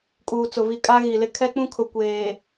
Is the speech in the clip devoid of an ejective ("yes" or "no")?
no